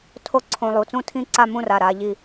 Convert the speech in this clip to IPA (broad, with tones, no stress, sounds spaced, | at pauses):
tʰ o˥˨ ǀʰ õ˧ lˠ u˩˧˩ t͡s ũ˥˨ tʰ ĩ˥˨ ǀ a˥˨ m ũ˥˨ r a˩˧˩ ɾ a˧ ʎ i˧